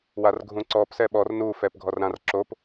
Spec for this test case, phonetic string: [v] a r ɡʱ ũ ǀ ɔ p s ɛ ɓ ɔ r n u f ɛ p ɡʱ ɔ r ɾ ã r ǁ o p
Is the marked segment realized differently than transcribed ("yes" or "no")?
yes